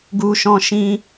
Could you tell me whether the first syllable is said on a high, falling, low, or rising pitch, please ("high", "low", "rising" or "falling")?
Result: high